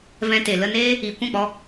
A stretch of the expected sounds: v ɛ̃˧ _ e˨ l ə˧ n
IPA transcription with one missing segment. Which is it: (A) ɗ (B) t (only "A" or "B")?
B